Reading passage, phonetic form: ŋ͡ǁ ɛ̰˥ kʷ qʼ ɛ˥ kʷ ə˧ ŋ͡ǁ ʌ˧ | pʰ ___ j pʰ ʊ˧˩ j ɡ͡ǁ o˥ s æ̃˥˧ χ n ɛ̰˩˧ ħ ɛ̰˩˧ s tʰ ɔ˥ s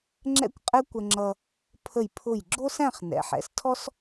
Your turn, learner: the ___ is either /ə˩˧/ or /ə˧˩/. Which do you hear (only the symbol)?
ə˧˩